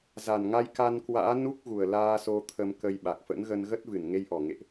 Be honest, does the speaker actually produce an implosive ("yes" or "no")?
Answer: yes